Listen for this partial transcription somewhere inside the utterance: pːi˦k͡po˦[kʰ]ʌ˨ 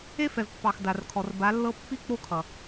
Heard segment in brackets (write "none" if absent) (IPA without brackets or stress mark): kʰ